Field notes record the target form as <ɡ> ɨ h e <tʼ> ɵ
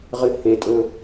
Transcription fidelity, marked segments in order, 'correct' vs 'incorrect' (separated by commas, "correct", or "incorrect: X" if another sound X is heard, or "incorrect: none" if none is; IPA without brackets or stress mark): incorrect: ʁ, correct